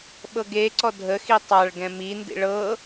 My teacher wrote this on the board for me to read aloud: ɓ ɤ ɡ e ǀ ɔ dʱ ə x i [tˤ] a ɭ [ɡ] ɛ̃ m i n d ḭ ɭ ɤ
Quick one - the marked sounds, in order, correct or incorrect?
correct, correct

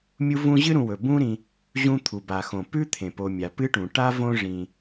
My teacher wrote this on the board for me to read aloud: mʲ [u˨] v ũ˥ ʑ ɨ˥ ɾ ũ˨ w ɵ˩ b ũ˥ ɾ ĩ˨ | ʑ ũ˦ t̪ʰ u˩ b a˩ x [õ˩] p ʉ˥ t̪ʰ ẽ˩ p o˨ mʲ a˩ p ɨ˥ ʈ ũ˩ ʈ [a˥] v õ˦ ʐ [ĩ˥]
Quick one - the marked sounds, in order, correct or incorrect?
incorrect: u˥, correct, correct, incorrect: ĩ˩

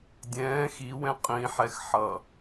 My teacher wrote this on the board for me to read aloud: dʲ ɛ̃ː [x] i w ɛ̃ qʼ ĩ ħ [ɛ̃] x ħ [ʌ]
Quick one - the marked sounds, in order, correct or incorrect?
correct, incorrect: ɛ, correct

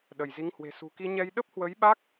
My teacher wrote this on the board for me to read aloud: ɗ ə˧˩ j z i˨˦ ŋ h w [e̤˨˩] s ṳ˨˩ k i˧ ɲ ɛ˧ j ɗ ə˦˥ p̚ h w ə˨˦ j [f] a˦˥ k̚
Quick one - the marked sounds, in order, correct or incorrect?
correct, incorrect: ɓ

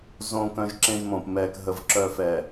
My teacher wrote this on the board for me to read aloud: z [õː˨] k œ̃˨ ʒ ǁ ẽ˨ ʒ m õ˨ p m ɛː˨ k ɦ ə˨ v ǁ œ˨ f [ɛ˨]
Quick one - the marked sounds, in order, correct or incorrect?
correct, correct

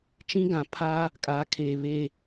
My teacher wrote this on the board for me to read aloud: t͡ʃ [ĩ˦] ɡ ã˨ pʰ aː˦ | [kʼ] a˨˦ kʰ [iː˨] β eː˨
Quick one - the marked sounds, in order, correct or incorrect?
correct, correct, incorrect: eː˨

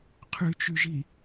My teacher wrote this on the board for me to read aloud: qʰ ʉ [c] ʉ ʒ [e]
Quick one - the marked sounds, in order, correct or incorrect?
incorrect: t͡ʃ, incorrect: i

